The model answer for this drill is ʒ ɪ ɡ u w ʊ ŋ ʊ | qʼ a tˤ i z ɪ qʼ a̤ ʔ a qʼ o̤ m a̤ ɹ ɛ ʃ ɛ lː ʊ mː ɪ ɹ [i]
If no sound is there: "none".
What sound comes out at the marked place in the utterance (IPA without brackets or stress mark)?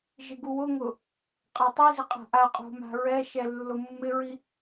i